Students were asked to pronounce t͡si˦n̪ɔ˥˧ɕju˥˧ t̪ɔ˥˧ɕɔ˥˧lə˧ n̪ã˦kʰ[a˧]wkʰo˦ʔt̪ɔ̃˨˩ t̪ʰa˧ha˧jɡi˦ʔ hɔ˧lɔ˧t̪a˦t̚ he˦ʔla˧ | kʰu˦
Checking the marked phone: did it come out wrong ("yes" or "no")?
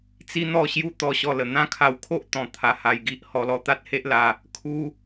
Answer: no